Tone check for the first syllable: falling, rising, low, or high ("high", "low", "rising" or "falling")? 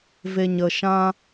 low